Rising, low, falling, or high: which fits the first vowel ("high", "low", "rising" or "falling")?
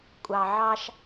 low